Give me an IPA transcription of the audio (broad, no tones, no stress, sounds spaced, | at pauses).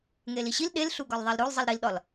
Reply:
ŋ e l i ɕ i l ɗ e l ɬ u ɡ ɒ l ðˤ æ l ɾ o l zˤ i l ɾ i l ɗ ɒ l